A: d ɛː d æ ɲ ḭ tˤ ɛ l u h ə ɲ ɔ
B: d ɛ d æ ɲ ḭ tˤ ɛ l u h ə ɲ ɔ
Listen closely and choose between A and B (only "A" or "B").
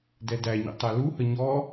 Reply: B